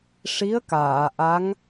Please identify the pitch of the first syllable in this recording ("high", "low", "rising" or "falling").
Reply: rising